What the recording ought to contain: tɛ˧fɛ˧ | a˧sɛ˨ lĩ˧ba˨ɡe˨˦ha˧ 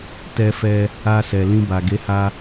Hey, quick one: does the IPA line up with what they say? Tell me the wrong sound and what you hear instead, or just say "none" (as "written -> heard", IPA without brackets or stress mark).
none